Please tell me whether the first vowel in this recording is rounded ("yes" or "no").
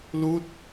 yes